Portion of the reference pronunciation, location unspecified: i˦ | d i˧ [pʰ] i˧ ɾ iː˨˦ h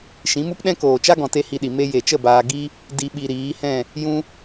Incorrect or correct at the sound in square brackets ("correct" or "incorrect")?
incorrect